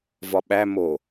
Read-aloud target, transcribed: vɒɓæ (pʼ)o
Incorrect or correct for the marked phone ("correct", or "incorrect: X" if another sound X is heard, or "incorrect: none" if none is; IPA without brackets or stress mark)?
incorrect: m